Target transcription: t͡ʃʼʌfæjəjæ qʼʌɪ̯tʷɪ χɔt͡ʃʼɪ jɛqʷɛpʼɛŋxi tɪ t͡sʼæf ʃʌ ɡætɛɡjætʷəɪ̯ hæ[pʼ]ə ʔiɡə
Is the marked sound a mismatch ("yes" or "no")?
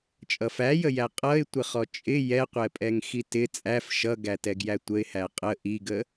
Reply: yes